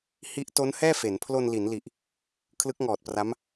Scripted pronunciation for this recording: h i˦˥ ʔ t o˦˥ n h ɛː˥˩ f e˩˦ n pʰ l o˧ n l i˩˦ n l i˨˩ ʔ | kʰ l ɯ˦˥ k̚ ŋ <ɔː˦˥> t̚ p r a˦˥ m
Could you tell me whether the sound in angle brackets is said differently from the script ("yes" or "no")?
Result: yes